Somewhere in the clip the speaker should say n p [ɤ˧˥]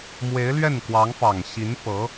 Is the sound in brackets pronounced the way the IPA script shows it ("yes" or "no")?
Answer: yes